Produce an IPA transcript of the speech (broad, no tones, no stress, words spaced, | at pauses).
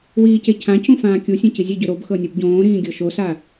wiːcecʰãcũ fãːkʲusʲẽ cizʲeɟø ɾobxɤ nʲubɟõːɾĩː ɡʲɤʃosa